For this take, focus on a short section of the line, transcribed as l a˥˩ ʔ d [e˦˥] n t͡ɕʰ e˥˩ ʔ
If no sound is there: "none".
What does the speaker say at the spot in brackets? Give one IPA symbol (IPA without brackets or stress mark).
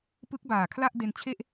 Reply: e˧